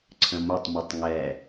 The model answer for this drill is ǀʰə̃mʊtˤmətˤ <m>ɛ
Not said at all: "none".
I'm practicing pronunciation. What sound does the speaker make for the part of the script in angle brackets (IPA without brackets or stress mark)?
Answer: ŋ